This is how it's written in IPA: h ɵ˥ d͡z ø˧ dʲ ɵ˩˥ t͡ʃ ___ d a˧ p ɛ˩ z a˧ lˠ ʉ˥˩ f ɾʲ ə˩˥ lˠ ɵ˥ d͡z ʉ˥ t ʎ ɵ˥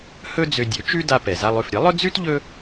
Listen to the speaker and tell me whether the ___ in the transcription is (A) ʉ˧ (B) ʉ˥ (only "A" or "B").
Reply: B